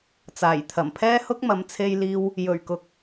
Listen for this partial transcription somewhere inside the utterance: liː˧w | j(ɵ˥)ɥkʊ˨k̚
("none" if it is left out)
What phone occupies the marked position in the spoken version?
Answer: ɵ˨˩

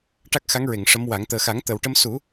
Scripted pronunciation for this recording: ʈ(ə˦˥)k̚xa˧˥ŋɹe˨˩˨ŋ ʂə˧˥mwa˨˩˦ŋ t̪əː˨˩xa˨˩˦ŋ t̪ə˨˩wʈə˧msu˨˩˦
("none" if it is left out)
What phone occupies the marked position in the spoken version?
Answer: a˦˥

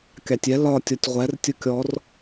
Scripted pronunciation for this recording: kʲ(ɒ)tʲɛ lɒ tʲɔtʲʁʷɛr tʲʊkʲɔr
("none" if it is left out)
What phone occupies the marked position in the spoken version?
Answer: ɑ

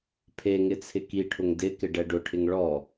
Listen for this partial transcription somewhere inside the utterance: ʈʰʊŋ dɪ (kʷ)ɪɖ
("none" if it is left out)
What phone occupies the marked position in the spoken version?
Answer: k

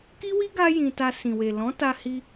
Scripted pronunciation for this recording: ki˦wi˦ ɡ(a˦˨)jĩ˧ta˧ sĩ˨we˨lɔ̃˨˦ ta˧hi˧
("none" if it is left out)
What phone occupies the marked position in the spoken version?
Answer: a˦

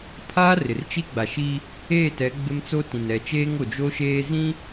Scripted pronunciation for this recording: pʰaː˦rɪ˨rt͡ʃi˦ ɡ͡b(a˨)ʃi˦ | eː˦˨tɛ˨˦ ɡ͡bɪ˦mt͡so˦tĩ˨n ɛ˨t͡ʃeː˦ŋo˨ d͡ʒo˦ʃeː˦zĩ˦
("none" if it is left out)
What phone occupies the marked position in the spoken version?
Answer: a˨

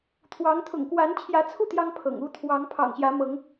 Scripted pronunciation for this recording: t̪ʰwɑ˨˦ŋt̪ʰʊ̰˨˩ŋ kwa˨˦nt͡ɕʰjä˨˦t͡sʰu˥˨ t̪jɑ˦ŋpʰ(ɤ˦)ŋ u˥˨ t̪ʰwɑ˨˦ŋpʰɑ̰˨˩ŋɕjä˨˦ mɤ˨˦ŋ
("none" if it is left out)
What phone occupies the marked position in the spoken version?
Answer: ɤ̰˨˩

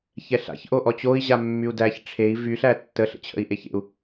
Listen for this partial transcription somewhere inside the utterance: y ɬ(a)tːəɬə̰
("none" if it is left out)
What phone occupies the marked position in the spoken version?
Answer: æ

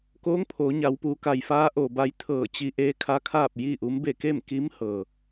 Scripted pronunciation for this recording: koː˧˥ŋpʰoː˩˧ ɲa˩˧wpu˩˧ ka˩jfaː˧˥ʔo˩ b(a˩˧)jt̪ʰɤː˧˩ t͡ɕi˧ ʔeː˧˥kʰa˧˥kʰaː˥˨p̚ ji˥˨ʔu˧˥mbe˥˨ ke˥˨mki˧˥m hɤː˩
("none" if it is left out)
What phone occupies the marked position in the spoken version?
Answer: a˧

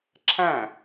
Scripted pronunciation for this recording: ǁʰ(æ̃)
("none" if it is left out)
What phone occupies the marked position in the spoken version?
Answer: æ̃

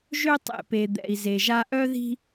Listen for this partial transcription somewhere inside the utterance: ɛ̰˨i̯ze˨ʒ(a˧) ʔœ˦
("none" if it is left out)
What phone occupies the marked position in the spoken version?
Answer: a˧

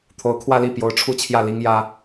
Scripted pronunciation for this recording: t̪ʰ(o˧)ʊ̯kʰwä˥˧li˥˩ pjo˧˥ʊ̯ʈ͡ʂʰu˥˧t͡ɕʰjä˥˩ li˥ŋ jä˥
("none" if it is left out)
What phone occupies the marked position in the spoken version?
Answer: o˧˥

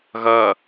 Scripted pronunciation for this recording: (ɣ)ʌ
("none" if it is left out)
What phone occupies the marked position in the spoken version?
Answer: ɣ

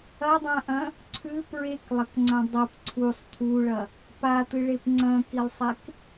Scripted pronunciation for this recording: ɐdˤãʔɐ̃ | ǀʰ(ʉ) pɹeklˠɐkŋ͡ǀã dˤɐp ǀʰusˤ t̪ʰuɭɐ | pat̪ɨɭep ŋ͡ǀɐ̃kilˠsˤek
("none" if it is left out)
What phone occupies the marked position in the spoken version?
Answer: ʉ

